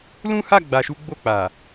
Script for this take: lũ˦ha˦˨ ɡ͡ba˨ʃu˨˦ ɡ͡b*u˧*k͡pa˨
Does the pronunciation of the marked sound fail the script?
yes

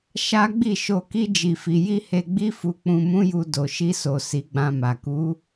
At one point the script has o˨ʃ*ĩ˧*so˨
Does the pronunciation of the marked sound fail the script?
yes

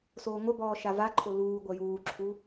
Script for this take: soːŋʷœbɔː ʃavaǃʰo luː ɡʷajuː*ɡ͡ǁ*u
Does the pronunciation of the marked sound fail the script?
yes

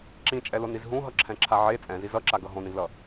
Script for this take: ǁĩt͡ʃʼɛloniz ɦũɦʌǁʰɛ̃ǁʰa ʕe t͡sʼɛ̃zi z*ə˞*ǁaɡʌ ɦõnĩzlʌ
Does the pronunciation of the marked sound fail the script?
yes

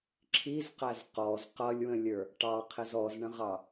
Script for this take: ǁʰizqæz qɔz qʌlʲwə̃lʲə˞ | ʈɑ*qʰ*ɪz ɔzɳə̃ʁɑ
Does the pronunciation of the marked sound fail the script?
no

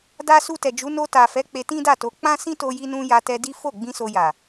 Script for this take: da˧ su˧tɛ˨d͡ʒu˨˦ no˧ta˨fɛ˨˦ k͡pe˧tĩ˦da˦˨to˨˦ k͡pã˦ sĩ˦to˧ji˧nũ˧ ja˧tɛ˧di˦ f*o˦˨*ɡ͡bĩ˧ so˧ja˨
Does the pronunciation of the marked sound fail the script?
no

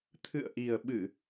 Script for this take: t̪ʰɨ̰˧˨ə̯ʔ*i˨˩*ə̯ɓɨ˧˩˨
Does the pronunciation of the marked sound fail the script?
no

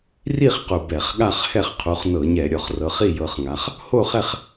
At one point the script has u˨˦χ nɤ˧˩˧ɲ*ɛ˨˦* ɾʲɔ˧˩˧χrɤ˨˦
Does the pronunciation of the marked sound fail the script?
yes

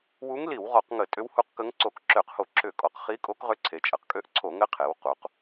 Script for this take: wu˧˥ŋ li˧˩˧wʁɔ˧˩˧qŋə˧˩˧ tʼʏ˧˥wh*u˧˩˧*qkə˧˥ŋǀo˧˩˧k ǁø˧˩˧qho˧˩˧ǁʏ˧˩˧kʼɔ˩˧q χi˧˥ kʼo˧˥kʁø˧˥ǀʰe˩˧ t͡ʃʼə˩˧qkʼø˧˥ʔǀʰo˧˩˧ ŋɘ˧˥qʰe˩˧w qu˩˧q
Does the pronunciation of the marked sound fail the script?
yes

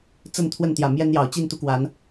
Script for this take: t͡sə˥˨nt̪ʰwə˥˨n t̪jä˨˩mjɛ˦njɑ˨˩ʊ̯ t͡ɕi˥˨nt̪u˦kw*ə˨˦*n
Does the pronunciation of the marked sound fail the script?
yes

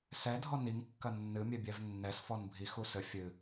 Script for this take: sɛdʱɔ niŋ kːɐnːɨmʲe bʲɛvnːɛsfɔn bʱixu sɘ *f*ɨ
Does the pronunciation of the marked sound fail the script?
yes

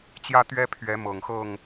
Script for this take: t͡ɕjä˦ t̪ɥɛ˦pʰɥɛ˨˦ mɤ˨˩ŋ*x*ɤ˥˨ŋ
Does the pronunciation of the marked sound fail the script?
no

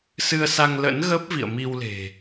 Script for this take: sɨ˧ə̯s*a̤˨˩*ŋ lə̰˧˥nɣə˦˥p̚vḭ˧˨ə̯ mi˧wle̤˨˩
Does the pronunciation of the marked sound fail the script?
yes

